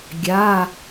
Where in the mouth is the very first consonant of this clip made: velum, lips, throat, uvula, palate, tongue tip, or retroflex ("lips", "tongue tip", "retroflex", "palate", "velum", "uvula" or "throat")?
velum